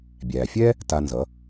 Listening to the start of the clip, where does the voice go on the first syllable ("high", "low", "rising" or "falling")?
low